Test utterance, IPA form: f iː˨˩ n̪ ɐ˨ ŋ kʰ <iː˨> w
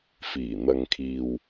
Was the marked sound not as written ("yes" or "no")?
no